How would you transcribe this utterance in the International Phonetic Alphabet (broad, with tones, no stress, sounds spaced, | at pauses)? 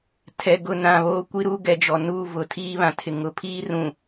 tʰ ɛ˨ ɡ ʊ˦˨ n ã˦˨ β oː˦ kʷ i˦ ɾ u˦ ɡ ɛ˨ d͡ʒ ɔ˨ n uː˦˨ v ʊ˨ tʰ iː˦ β ã˨ tʰ ɪ˨ ŋ ʊ˨ pʰ iː˦ r ũ˨